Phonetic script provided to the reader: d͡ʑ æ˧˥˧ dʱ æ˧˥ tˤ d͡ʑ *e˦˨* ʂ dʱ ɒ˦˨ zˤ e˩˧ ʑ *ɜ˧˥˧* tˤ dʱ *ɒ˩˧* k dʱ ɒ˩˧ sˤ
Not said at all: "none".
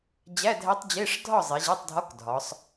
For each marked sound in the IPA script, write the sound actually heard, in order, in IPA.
e˧˥˧, æ˧˥˧, ɒ˧˥˧

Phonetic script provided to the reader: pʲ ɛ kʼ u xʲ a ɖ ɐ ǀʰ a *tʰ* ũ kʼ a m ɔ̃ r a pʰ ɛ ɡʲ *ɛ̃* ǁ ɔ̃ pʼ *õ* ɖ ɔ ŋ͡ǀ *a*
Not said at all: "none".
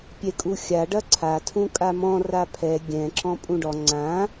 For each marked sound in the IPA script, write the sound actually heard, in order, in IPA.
tʰ, ɛ̃, ũ, ã

